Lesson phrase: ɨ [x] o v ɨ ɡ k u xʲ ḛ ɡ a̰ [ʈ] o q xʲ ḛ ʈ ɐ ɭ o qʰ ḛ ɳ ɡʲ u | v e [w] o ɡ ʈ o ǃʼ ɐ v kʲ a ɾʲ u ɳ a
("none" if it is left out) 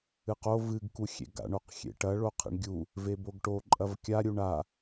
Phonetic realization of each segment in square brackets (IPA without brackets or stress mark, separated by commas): q, ɳ, b